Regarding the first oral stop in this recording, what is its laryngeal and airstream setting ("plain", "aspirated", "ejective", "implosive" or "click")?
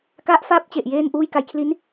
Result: plain